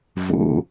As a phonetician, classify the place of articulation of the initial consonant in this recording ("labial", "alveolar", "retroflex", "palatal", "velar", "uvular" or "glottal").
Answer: labial